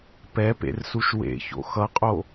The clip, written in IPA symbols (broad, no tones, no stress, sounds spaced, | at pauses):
p ɛ p ḛ r s u ʃ w ḛ ç o̰ x ʌ qʼ o